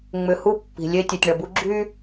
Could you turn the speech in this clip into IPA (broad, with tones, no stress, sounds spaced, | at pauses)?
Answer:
ŋ͡m ʏ˨ h u˦˨ pː i̤˨ lʲ e˦ tʲ ɛ˨ tʲ ɳ ɐ˨ b u˦ ɡ͡ǁ y˦